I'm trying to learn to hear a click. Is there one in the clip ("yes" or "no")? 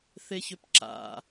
yes